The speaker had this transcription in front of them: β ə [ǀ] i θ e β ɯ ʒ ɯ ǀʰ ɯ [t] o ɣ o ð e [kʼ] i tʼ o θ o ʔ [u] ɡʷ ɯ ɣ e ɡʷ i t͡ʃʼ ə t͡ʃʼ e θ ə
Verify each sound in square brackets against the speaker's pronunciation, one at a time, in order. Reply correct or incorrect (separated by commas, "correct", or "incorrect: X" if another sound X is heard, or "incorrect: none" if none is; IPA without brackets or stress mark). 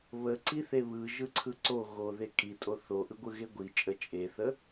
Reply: correct, incorrect: ǀ, correct, incorrect: ɯ